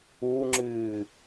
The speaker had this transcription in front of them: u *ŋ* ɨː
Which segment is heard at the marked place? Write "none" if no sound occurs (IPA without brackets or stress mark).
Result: ŋ͡ǁ